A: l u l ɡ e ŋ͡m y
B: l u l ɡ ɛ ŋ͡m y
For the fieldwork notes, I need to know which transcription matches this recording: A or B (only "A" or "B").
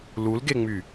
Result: A